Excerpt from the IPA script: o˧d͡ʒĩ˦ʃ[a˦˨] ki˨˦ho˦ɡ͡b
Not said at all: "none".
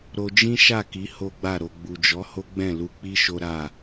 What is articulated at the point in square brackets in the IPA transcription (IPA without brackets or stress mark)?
a˦˨